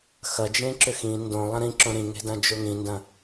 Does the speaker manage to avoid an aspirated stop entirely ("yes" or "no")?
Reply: yes